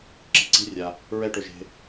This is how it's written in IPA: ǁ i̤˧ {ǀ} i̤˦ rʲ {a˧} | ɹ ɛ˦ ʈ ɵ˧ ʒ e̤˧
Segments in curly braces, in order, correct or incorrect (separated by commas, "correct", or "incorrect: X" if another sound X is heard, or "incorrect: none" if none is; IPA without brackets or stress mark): correct, correct